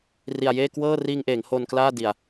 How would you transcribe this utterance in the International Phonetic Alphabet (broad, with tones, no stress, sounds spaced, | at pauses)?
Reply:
r i˨˩ a̯ j eː˥˩ k w ɤː˥˩ r iː˧ ŋ ʔ eː˩˦ ŋ h o˧ n k l aː˥˩ d i˨˩ a̯